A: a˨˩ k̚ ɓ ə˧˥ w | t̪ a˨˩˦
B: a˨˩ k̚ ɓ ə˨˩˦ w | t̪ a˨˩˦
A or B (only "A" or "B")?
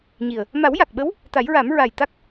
A